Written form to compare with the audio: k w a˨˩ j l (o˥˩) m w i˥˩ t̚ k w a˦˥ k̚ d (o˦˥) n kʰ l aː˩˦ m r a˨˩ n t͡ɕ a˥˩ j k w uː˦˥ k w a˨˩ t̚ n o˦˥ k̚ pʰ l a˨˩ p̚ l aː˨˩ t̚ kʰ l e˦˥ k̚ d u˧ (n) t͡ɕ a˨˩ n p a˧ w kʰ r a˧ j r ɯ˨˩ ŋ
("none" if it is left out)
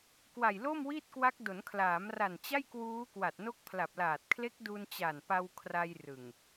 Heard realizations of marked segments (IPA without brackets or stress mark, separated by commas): o˥˩, o˩˦, n